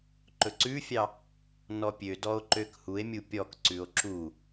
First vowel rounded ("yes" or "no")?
yes